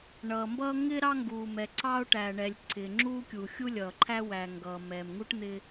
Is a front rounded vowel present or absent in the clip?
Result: absent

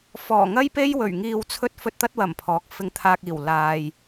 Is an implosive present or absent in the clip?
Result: absent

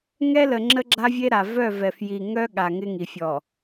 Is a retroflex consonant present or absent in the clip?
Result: absent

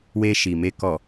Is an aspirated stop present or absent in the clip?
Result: absent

